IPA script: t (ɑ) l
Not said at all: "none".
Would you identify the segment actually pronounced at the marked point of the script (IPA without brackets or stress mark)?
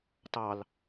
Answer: ɑ